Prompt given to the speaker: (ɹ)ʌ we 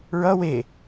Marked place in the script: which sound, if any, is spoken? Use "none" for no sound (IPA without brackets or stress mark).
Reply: ɹ